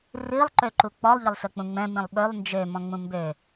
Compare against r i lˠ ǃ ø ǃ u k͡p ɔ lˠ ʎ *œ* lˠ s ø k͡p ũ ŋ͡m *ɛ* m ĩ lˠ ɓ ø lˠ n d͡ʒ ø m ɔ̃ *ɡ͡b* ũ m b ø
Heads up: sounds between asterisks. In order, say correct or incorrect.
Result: incorrect, incorrect, incorrect

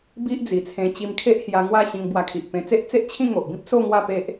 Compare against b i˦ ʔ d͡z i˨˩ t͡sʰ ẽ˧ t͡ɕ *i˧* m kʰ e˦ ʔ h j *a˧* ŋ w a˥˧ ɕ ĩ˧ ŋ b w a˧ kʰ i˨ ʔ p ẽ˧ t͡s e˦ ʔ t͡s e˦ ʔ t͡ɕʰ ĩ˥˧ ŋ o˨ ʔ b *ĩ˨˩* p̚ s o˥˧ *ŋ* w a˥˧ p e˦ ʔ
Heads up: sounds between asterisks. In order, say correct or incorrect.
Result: correct, correct, incorrect, correct

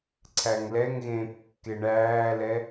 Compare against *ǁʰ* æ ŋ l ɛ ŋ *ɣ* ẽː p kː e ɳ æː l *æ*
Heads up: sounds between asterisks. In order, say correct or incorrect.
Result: incorrect, correct, incorrect

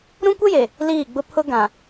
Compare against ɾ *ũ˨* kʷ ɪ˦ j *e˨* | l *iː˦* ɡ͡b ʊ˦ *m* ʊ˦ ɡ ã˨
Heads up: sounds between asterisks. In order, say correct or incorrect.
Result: incorrect, correct, incorrect, incorrect

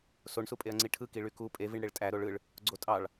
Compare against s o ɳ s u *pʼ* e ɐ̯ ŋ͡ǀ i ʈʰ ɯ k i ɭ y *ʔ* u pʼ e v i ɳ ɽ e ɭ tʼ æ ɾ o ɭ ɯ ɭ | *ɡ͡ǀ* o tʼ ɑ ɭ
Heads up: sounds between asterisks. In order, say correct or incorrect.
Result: correct, incorrect, correct

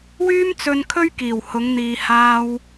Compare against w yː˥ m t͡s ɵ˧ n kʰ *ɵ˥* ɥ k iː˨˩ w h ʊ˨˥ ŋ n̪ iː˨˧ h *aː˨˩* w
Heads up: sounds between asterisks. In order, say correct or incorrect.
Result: correct, incorrect

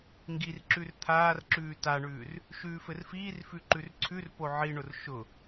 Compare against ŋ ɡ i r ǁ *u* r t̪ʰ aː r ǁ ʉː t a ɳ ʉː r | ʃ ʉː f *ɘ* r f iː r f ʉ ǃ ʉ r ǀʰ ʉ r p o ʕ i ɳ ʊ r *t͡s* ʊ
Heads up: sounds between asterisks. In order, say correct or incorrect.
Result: incorrect, correct, incorrect

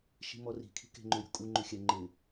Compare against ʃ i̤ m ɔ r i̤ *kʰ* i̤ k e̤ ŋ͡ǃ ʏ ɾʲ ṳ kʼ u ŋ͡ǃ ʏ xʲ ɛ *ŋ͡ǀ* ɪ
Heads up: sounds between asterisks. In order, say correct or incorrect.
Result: correct, incorrect

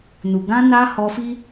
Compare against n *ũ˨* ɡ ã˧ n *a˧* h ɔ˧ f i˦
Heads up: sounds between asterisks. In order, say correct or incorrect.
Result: incorrect, correct

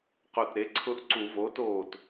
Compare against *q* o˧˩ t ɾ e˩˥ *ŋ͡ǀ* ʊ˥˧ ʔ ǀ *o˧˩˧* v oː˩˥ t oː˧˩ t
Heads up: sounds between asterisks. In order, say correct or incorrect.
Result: correct, incorrect, incorrect

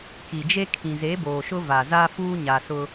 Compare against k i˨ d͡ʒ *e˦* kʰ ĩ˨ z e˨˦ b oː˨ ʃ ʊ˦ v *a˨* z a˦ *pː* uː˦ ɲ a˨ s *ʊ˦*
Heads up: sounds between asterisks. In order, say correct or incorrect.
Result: correct, correct, incorrect, correct

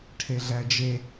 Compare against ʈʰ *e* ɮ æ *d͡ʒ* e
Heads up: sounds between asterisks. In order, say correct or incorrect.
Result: correct, correct

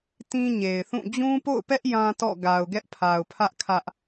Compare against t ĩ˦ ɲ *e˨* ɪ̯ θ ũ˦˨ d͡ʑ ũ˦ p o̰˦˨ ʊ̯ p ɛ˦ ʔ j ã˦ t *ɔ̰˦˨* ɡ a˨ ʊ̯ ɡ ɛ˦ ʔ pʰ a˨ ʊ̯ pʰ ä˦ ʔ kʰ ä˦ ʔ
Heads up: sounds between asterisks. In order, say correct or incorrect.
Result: correct, correct

